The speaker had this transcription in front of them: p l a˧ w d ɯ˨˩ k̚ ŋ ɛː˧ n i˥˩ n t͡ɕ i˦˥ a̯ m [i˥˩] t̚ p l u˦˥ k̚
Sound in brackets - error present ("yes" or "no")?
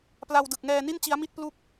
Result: no